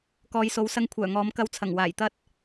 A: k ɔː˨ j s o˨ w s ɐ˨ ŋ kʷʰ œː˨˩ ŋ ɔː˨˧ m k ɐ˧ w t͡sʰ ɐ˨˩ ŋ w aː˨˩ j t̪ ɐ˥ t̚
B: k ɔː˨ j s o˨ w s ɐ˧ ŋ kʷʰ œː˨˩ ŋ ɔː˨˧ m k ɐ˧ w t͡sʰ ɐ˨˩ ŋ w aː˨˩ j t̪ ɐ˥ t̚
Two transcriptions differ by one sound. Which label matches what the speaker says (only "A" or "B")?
B